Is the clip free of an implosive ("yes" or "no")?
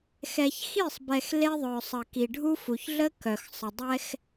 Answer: yes